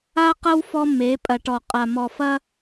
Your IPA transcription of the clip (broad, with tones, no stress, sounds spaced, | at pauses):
a˦ q ɐ˦ w f ɔ˦ m e˨˦ pʼ ɐ˨ ʈ ɔ˨ qʼ a˨ m ɔ˨ f ɐ˦